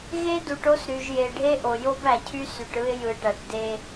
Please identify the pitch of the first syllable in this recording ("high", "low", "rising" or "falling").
high